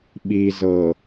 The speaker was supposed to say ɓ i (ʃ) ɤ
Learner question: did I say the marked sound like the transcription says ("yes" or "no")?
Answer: no